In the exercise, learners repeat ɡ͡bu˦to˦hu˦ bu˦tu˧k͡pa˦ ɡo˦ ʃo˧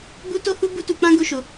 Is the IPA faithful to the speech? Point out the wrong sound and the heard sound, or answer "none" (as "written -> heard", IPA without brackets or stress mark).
a˦ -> ã˦